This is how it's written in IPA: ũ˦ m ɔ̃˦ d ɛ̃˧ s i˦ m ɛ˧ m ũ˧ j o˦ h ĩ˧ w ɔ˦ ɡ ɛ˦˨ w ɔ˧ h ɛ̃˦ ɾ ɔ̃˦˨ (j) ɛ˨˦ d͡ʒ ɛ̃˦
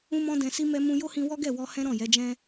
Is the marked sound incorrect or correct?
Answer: correct